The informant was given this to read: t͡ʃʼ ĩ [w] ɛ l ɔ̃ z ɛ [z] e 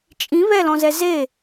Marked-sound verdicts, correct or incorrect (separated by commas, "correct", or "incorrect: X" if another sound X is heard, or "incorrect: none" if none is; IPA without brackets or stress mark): incorrect: β, correct